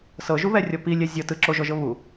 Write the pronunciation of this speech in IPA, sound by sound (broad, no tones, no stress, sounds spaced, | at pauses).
s ɤ ʒ u β ɛ rʲ ɔ p i lʲ ɛ zʲ ɤ t ɯ ǁ o ʒ ɔ ʒ ɤ β u